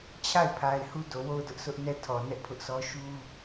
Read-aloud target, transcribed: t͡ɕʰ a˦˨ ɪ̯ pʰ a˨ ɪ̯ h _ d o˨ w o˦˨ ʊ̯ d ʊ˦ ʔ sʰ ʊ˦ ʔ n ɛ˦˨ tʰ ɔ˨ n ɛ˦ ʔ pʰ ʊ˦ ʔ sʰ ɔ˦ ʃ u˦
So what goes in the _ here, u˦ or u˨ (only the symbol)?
u˦